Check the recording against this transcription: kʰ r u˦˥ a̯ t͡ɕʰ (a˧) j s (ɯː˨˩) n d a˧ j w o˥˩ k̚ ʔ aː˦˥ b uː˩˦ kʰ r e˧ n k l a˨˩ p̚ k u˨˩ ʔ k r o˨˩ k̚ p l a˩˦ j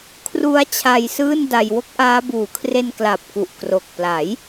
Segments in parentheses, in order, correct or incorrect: correct, incorrect: ɯː˥˩

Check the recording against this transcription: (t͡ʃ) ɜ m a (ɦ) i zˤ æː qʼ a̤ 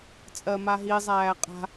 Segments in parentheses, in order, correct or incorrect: incorrect: t͡sʼ, correct

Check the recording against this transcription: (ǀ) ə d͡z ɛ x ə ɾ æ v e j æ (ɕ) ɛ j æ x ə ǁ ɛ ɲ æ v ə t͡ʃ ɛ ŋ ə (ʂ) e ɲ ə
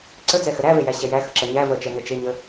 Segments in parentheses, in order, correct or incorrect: correct, correct, incorrect: t͡ʃ

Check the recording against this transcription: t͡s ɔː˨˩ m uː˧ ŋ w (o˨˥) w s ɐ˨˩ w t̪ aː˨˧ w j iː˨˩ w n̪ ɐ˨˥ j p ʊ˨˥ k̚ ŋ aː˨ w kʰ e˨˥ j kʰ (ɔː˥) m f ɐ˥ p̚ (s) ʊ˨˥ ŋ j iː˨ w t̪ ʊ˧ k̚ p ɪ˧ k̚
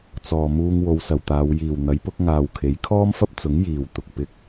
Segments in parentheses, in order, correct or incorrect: incorrect: o˨˧, correct, incorrect: t͡s

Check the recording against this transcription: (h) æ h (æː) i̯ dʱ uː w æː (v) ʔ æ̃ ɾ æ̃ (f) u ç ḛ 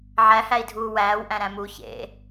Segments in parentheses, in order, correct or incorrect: incorrect: ʕ, incorrect: æ, incorrect: w, incorrect: m

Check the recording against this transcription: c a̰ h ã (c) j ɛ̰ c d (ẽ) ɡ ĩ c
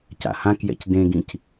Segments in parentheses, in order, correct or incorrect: incorrect: k, correct

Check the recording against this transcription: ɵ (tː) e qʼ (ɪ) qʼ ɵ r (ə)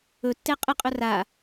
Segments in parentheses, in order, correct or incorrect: correct, incorrect: ə, incorrect: a

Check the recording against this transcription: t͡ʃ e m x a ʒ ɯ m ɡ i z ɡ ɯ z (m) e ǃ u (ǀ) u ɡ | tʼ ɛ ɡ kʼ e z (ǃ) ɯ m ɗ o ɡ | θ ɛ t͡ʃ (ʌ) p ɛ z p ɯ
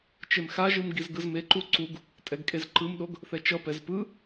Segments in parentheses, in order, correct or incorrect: correct, correct, correct, correct

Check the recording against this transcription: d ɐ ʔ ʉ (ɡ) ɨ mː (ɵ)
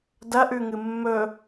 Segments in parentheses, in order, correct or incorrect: incorrect: ŋ, correct

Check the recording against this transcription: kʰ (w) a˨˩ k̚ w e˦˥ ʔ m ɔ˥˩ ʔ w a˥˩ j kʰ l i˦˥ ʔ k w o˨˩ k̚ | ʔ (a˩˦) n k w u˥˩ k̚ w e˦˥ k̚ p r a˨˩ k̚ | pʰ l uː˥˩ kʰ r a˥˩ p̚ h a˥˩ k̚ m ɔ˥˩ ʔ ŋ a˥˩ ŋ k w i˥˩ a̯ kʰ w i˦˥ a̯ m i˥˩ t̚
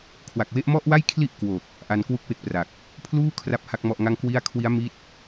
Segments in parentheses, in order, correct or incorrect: correct, incorrect: a˧

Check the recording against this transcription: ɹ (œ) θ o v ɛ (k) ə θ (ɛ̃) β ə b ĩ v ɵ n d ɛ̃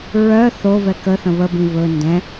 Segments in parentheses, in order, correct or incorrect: correct, correct, incorrect: ə̃

